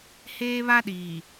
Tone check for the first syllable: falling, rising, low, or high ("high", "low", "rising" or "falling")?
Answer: high